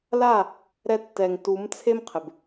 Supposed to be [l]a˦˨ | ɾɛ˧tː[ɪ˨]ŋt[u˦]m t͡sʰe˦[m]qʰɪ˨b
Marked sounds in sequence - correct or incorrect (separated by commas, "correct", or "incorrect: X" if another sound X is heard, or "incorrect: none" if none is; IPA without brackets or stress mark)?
correct, incorrect: ɛ˨, incorrect: u˨˦, correct